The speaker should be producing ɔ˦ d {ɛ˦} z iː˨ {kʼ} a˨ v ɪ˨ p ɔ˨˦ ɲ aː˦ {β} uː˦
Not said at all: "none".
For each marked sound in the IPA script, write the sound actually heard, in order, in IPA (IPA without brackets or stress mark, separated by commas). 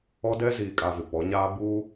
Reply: ɛ˦, kʼ, b